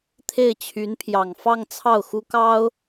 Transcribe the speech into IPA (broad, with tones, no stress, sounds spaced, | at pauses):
t̪ʰ e˥˩ ɪ̯ t͡ɕʰ y˧˥ n pʰ j ɑ˨˩ ŋ f ɑ˥˧ ŋ t͡sʰ ɑ˥˩ ʊ̯ x u˥ k ɑ˥ ʊ̯